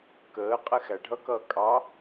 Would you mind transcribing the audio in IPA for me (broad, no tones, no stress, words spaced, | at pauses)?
kəː qʼɛxæɖʱʌkʌː kʼɑ